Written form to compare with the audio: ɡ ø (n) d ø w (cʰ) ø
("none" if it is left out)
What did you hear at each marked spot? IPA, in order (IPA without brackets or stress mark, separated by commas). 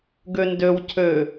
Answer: n, cʰ